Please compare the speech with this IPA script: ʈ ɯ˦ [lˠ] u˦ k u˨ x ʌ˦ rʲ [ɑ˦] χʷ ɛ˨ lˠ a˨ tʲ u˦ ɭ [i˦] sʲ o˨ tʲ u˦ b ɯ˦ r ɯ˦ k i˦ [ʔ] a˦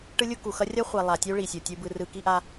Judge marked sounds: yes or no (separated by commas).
no, no, no, yes